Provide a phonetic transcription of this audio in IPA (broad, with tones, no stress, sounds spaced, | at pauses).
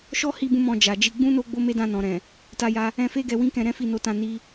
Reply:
ʃ ɔ˦ h i˧ b ũ˧ m ɔ̃˧ d͡ʒ a˨ d͡ʒ i˧ ɡ͡b ũ˦ n o˦ ɡ͡b o˦ m e˦ d ã˦˨ n ɔ̃˨ ɾ ɛ̃˨ | t a˧ j a˧ | ɛ̃˧ f e˦ ɡ ɛ˧ w ĩ˦ k ɛ̃˧ ɾ ɛ̃˦ f i˦˨ n o˧ t ã˧ n i˦